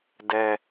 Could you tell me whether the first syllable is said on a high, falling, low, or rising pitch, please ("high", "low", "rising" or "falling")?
low